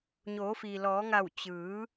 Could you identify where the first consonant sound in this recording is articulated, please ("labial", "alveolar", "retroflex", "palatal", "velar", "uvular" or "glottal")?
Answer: palatal